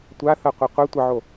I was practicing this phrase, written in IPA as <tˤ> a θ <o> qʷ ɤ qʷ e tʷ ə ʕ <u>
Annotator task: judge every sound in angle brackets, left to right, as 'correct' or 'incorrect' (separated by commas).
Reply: incorrect, incorrect, incorrect